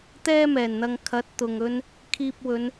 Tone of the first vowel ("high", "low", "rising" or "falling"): high